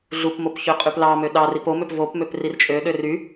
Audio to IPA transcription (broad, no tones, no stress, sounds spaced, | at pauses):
ɮ u p m o p ç ø qʼ y p l ɑ m ø ɗ ɑ r i p o m ø p v o p m ø p r i r t͡ʃʼ ø ɗ ø r y